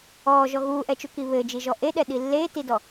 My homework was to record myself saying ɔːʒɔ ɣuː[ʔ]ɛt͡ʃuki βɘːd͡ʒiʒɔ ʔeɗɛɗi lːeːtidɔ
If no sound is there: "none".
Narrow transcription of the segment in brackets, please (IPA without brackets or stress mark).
ʔ